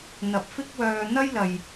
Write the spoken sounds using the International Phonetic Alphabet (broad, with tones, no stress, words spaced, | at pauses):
n̪ɐ˨p̚fɪ˥k̚wœː˧ n̪ɐ˥jlɐ˨j